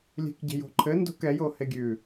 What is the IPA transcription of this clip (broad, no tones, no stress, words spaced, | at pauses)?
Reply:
lʲe̤kɟe̤jo̤ ǃʰɘ ndo̤kɛjo heɡʲʉ